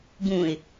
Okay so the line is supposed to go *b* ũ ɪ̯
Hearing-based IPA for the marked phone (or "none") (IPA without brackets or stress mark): b